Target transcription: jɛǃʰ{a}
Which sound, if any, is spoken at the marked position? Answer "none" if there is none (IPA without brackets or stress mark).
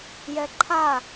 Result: a